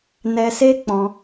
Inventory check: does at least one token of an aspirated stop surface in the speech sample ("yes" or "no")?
no